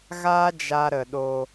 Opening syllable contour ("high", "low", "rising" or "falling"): high